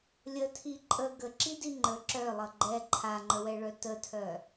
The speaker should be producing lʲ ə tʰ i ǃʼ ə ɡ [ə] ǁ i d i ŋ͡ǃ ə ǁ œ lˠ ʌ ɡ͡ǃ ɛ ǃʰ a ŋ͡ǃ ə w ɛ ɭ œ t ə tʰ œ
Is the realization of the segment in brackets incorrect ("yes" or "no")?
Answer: no